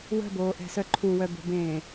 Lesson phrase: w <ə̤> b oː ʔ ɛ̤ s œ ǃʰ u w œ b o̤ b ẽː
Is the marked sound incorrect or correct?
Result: correct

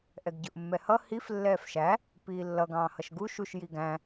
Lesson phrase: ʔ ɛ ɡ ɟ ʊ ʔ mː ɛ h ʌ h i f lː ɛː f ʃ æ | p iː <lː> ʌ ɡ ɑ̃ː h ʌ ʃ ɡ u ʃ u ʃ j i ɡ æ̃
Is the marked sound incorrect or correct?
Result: correct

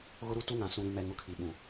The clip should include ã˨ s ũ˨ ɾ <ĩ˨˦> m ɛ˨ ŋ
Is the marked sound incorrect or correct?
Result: incorrect: ĩ˨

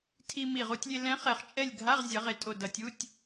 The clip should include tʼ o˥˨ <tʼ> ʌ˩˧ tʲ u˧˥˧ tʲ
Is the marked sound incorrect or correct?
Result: incorrect: d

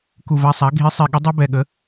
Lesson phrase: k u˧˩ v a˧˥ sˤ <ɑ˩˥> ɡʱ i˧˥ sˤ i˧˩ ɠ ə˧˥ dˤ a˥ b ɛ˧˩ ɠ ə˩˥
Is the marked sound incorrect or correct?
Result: incorrect: a˩˥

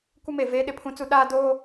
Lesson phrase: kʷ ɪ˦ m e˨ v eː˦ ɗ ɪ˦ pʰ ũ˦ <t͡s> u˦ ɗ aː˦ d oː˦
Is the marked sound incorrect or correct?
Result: correct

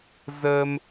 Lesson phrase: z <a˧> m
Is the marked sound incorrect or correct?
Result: incorrect: ə˧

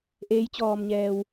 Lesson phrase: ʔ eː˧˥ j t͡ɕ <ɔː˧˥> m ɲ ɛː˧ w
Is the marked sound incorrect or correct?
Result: incorrect: ɔː˧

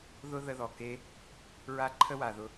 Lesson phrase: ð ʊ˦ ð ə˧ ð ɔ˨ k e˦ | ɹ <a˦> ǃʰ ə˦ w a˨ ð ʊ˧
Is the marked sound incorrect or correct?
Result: correct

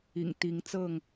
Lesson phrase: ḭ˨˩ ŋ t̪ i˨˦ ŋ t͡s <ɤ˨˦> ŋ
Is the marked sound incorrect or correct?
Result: incorrect: ɤ˥˨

